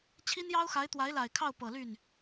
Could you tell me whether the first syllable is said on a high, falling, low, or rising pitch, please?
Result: high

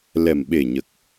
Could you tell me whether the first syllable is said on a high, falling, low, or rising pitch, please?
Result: low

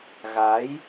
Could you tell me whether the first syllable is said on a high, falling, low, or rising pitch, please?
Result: rising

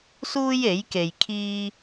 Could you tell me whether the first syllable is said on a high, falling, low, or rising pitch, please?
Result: high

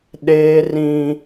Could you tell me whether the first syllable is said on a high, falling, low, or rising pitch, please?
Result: high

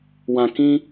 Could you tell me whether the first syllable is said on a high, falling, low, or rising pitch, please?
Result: low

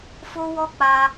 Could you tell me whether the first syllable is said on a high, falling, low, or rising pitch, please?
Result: high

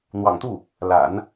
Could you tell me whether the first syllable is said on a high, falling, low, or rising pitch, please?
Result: low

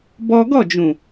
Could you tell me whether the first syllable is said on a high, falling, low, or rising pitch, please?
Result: high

